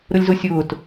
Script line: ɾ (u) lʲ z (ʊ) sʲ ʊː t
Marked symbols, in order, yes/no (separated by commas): no, yes